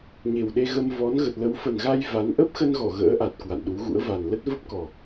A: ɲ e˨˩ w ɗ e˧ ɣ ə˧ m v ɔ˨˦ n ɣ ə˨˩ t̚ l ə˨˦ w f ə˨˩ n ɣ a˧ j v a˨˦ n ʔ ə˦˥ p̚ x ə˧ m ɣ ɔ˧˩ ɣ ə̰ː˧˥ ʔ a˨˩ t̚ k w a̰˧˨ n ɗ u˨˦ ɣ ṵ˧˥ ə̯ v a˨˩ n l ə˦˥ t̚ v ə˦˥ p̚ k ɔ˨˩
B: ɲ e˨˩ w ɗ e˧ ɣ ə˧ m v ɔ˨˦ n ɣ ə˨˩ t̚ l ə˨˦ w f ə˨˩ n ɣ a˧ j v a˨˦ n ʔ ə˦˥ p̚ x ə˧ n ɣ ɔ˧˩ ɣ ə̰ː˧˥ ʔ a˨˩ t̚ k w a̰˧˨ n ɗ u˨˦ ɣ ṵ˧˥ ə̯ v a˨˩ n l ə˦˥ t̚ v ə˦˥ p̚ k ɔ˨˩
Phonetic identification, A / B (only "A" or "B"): B